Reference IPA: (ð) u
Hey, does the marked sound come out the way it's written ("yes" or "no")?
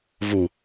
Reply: no